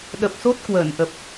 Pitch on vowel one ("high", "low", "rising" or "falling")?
low